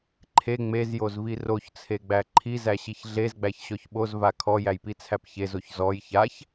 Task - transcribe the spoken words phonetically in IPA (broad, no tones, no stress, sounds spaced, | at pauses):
ǃʰ e ŋ͡m e z j o z v i r o ç t͡sʰ e ɡ͡b æ ǃʰ i z æ ɕ i ç ɮ e z ɡ͡b æ ç ɕ ɔ ç ɓ o z v a kʰ ɔ j æ j p i t͡sʰ æ p ç e z o ç z ɔ j ç a ç